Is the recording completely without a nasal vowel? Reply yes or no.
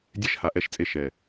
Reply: yes